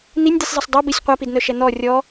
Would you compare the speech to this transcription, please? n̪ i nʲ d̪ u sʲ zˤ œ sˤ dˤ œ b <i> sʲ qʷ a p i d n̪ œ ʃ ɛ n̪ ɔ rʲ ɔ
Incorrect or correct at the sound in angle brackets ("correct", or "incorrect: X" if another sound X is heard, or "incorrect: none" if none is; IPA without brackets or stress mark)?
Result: correct